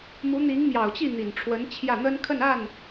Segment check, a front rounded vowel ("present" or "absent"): absent